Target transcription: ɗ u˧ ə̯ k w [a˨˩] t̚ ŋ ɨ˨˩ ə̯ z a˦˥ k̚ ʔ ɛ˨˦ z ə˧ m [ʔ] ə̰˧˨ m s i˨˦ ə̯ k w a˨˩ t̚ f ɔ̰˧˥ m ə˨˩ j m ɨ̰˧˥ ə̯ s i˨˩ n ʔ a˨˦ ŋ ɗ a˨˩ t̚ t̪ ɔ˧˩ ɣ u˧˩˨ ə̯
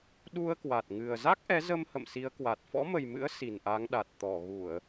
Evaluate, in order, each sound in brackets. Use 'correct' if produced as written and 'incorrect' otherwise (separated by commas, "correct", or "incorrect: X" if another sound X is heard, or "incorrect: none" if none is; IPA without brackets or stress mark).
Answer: correct, incorrect: h